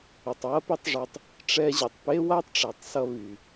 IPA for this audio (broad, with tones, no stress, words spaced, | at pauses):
y˩tˤwɐ˥ pe˥tˤʐe˧tˤ | ʈ͡ʂɛ˧ʑɐ˩tˤpe˥wa˥tˤ ʈ͡ʂɛ˩tˤsʌ˧ βy˩